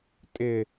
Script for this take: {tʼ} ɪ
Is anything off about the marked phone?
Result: no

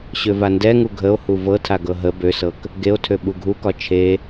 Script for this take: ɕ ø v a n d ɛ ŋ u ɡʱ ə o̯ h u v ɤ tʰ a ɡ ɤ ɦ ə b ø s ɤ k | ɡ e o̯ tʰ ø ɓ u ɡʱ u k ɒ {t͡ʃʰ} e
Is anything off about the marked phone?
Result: no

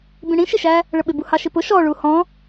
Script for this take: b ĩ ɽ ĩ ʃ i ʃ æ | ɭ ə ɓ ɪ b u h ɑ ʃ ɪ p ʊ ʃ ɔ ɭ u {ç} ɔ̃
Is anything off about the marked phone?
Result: yes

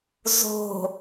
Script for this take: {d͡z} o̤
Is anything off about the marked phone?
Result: yes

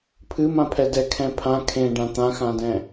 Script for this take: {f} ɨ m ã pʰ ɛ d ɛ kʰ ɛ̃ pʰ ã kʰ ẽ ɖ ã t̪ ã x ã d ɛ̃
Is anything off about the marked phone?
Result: yes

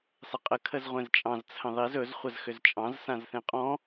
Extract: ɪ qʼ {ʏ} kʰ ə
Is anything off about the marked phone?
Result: yes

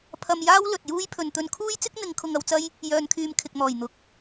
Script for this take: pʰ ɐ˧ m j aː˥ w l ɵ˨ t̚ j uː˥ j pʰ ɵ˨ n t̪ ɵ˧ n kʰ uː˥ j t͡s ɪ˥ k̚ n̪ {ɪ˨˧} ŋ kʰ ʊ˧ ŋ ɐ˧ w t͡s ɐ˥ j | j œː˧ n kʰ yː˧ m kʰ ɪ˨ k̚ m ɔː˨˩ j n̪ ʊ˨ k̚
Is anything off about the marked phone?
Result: no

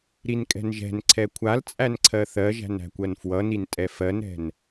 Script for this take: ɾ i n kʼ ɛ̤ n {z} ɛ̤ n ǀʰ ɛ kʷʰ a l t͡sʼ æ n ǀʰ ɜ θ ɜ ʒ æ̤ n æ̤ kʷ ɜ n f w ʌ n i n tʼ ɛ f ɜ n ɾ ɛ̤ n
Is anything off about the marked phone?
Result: yes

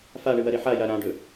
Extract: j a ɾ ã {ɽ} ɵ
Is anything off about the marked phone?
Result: yes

